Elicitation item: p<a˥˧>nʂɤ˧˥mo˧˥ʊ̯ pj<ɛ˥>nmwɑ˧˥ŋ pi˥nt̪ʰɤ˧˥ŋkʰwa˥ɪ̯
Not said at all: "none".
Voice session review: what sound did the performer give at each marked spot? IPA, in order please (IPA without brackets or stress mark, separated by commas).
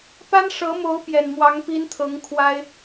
a˥, ɛ˨˩